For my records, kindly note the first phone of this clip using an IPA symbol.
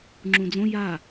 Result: ŋ͡ǁ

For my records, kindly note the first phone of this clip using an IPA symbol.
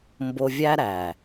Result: m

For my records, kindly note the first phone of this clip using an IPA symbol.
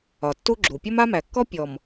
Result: ɒ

